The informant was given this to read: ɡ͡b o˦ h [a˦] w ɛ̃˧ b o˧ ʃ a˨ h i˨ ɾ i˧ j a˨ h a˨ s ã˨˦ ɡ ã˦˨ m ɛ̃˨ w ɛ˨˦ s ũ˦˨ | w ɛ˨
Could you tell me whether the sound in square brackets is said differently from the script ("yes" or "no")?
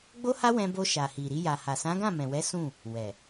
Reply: no